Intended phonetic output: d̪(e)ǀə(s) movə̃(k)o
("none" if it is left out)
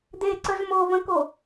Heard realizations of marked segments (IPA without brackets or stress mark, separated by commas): e, z, k